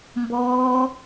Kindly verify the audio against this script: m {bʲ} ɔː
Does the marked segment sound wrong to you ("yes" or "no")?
yes